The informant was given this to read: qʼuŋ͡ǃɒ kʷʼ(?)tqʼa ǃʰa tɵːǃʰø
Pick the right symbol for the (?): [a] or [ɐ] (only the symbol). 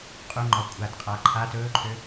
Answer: a